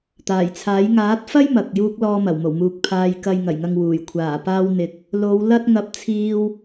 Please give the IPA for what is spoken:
t̪ aː˨˩ j t͡sʰ aː˨˥ j ŋ aː˨˥ t̚ f ɐ˥ j m ɐ˨ k̚ j uː˧ k̚ l ɔː˧ m ɐ˨˩ w m o˨˩ w m uː˨ k̚ pʰ aː˨ j k ɐ˨ j ŋ ɐ˨˩ j ŋ ɐ˨ ŋ w uː˨˩ j kʷʰ aː˨˩ p aː˧ w n̪ ɪ˨ k̚ | l o˨˧ w l ɐ˥ t̚ ŋ ɐ˧ p̚ t͡sʰ iː˧ w

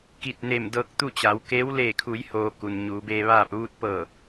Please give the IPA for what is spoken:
k i˧˩ t̚ n e˧˩ m d ɤː˧ k̚ t̪ u˥˨ t͡ɕ a˩˧ w k e˧˥ w l eː˧˩ kʰ u˩˧ j h oː˩ k u˩ n ɲ uː˩˧ b eː˧ ʋ aː˥˨ p̚ ʋ u˧ t̚ p ɤː˧˩

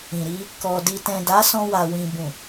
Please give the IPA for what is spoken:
ĩ˨ ɾ i˧ | k ɔ˨ d i˨ t ɛ̃˨ d a˨˦ s ɔ̃˧ w a˨ w ĩ˨ b ũ˨

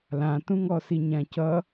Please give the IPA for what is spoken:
l ã t ũ ŋ ɔ s i ɲ ã c ʌ

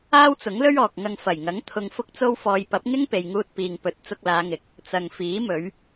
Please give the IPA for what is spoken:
aː˥ w t͡s ʊ˨˥ ŋ l ɵ˥ ɥ ɔː˨ k̚ ŋ ɐ˨ ŋ f ɐ˨˩ j ŋ ɐ˨˥ ŋ t̪ʰ ʊ˧ ŋ f ʊ˥ k̚ t͡s o˥ w f ɔː˧ j p ɐ˨˥ p̚ ŋ ɪ˥ ŋ p e˨ j ŋ uː˧ t̚ p iː˨ ŋ p ɵ˨˥ t̚ t͡s ʊ˧ k̚ l aː˨˧ ŋ ɪ˨ k̚ | t͡s ɐ˨ ŋ f iː˨˥ m ɵ˨˧ ɥ

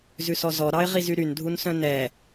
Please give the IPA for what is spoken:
z ʉ s ɔ z ɔ ɾ ɑ ɪ̯ ʁ i z y ɾ y n dʱ u n s œ̃ n ɛ

